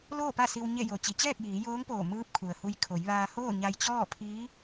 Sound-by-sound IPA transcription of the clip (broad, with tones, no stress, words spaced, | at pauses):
loː˥˨pa˥˨si˧w ɲe˥˨ jo˩ t͡ɕi˩˧t͡ɕɛː˥˨k̚jiː˩˧ joː˧˥ŋpoː˧˩ mɯː˧˥p̚ kʰu˩ə̯hu˧j kʰo˩˧jʋaː˧ hoː˥˨ɲa˧jt͡ɕɔː˥˨pʰiː˧˥